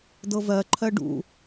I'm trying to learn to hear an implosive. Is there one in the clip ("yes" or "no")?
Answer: no